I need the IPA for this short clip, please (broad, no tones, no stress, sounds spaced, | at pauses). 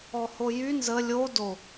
ɔ h o j y n z ə lʲ o d o